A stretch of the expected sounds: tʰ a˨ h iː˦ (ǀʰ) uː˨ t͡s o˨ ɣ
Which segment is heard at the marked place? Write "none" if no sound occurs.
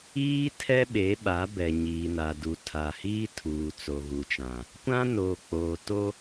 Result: tʰ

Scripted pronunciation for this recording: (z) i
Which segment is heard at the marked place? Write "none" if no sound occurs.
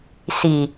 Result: s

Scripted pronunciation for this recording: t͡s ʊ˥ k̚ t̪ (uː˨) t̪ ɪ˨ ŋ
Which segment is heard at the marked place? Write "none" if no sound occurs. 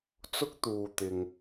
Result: uː˨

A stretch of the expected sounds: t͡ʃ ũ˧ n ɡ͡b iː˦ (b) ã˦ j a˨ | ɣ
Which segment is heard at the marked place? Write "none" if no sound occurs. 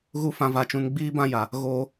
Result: b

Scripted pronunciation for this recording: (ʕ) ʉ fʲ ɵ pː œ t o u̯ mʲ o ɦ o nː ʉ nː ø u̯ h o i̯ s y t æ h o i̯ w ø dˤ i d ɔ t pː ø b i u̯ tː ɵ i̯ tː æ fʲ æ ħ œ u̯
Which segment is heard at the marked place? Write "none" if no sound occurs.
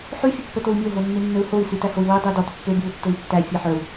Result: ħ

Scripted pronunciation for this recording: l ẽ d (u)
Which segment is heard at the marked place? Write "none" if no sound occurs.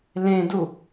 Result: u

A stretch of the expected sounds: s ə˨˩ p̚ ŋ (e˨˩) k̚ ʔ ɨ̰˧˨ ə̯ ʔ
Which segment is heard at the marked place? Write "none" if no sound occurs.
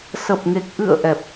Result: e˨˩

